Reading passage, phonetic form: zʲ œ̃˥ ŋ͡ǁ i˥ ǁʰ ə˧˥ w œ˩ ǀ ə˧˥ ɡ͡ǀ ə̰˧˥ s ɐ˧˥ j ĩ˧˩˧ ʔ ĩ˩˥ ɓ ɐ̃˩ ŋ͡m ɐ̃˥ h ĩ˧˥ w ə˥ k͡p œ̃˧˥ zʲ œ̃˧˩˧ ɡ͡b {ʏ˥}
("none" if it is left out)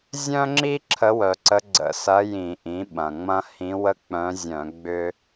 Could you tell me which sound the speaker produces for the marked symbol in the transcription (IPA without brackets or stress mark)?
ʏ˥